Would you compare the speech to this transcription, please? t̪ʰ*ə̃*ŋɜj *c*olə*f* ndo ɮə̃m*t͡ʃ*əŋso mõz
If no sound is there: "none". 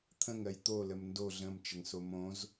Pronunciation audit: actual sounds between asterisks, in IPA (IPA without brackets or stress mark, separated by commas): ə̃, t̪, m, t͡ʃ